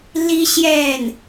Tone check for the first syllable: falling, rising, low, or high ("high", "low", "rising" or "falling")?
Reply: high